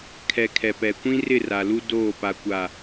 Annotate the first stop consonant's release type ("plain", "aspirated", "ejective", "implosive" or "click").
aspirated